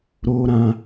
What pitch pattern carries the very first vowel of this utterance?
high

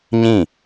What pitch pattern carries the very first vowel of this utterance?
falling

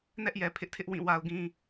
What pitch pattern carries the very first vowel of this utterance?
high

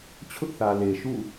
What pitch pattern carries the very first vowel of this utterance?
high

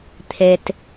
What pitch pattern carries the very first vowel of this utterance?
low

